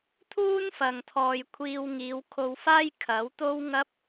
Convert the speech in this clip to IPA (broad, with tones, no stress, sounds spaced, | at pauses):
t̪ʰ uː˥ n f ɐ˨ ŋ t̪ʰ ɔː˨ j kʷʰ iː˧ w ŋ iː˨˧ w kʰ o˧ w f aː˥ j kʰ ɐ˨˥ w t̪ o˥ w ŋ ɐ˥ p̚